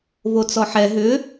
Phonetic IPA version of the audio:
v o t͡s ɔ ħ ɛ ɦ ʏ

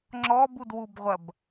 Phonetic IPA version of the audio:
ŋ͡ǁ ɔ b u d w u b ʁʷ ɐ b

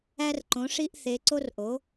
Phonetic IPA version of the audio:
æ˧ r ǃ õ˩˧ ʂ i˧ ʔ θ e˩˧ ǀ o˧ r ʔ o˩˧

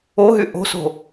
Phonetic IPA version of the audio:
o ɦ y ʔ o̤ s o̤

